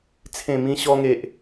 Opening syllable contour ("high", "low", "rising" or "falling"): low